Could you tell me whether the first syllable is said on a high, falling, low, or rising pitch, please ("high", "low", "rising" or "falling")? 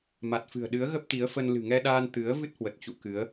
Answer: low